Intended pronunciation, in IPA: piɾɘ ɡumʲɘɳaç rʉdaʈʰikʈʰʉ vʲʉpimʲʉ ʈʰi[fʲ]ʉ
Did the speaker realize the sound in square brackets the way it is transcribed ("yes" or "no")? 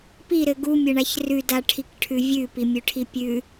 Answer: no